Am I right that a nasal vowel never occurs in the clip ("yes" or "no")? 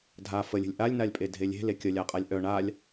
yes